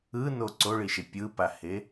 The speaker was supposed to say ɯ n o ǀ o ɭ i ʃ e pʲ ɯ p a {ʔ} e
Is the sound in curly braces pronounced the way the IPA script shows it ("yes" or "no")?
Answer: no